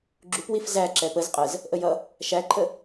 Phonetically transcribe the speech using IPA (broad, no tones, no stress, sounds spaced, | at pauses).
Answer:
ɡ͡ǁ u p w i f z æ ǁ ɛ p ə z qʼ ə z | ʔ ə j ʌ | ʃ æ ǃʰ ə